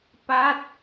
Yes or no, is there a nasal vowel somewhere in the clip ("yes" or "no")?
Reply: no